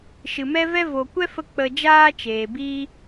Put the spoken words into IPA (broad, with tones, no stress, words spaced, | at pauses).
ʃɨ˨mɛ˦vɛ˦ vo˨kʷɛ˦fə˧ k͡pə˧ d͡ʒaː˦t͡ʃeː˨biː˦